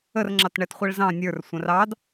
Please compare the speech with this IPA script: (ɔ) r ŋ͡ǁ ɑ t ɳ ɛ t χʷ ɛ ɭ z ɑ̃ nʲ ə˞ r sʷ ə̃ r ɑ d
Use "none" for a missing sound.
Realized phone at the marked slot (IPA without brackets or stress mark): ə